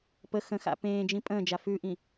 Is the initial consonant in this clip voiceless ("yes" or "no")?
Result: yes